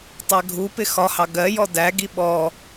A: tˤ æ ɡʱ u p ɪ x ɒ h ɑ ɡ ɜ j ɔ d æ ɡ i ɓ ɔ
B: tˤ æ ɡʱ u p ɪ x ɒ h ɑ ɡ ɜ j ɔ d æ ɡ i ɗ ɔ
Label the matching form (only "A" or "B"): A